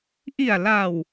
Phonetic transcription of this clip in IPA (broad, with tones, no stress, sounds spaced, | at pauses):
ʔ i˨˩ a̯ l a˨˩ w